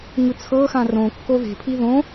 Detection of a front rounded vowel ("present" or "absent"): absent